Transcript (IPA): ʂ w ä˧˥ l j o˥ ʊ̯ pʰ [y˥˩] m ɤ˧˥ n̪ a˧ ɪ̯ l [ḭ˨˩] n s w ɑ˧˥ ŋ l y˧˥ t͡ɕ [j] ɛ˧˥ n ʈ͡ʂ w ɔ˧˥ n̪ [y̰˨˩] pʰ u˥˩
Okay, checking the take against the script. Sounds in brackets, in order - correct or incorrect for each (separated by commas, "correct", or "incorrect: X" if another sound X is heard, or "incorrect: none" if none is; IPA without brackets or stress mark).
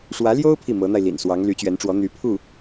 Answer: incorrect: i˥˩, correct, incorrect: ɥ, incorrect: y˧˥